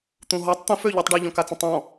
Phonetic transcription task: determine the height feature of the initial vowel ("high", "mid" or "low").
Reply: high